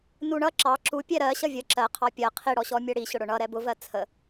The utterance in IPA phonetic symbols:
nuɳʌ ǁɑ ǁu pʲɛɾɜ ɕʌvʲə ǁɜqʰɑ pʲɜ qʰiɽɔɕɔ mʲɜɽiɕʊɽʊ ɳʌ ɾɛbʊvɜ t͡sʰə

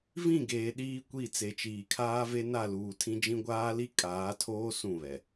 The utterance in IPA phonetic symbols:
vĩ˦˨ɡeː˨ ɗiː˦kʷi˦˨ t͡se˨t͡ʃiː˨kʰaː˦ve˦ na˦˨luː˨tʰĩ˦d͡ʒĩ˦ ɡʷaː˦li˦ kʼaː˨˦tʰoː˦ sũ˦˨βɛ˨

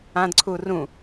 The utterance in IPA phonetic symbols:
ãdǀʰu rũ

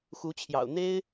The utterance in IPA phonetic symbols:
xu˧˥t͡ɕʰjɑ̰˨˩ʊ̯ n̪e˥ɪ̯

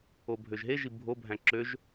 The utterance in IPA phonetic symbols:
obʱøʒɦeʒi bʱobʱæ̃ ǁøʒ

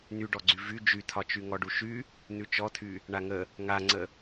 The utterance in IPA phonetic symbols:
n̪yɖɔɡ͡ǀy vy d͡ʒyt̪ʰɒt͡ʃy ŋɔɖuʃy | n̪ʉt͡ʃɔt̪ʰy | ɳaŋə | ŋaŋ͡ǀə

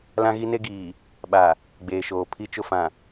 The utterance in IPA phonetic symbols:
lã˦ɣi˦ne˦ɡiː˨ | ɓa˨ | ɡ͡beː˨ʃoː˨ pʰi˦t͡ʃʊ˦fã˨

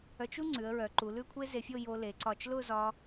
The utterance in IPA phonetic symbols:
œ˧t͡ʃu˥ ŋ͡ǀʉ˩˧ə̯ɹœ˩˧ǃu˩˧ lʉ˥˧kʷʰe˥ze˧fʲo˥˧ jo˧le˩˧ǀɒ˧˩t͡ʃ lʊ˥˧zɒ˧

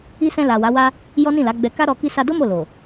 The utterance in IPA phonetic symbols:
i˧sɛ̃˧la˨ wa˨˦wa˦ | jɔ˦nĩ˦˨la˨˦ɡ͡bɛ˧ ka˦ɾɔ˧ ki˧sa˧do˦ mo˦˨lo˨

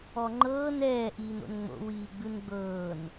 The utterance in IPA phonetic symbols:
ɔŋ͡ǃɤːn ɛː ʔiːno̰nŋ͡mo̰ wiːɡ͡bɯnɡ͡bɤːn

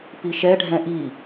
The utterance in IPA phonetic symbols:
piʃɛ ɖʱɛ̃ʔi

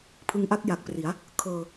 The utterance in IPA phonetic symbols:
pʰɯ˧ŋʔa˥˩k̚ ja˨˩k̚pri˩˦a̯ | kʰɤː˧

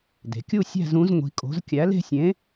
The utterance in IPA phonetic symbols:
de̤˩˧kʲu˥˧ sʲæ̤˥˧zũ˨˥z ŋʷi̤˨˥kʼo̤˨˥z kʲæ˨˥le̤˥˧sʲẽ˨˥

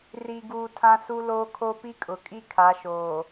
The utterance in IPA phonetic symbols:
ri˨ɡuː˨ tʰã˦su˦loː˦kʰo˦ pi˦kʼʊ˨kʼi˦ kʰa˨˦ʃoː˨

